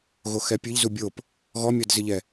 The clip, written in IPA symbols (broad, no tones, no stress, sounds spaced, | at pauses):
ɣ o x ɛ pʲ ɨ ʎ z u bʲ o p | ɣ ɔ mʲ ɔ d z ɨ ʎ ɛ